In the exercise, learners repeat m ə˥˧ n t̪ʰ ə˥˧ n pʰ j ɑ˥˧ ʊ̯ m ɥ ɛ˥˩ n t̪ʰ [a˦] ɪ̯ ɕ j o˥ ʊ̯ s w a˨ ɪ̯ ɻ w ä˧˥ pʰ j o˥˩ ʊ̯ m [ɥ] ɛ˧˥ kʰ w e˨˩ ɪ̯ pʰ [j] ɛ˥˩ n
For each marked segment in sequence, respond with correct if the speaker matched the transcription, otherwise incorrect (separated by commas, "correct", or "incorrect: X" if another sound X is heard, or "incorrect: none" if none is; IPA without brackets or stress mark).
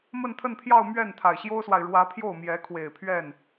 incorrect: a˨˩, incorrect: j, incorrect: ɥ